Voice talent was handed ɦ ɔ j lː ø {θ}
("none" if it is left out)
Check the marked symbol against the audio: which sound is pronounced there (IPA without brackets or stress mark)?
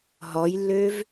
v